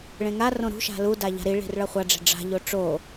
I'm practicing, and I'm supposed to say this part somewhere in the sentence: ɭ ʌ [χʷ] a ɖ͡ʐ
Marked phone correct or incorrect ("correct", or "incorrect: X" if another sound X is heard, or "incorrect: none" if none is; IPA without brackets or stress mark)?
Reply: correct